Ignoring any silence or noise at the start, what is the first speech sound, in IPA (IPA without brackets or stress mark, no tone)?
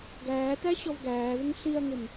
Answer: ɡ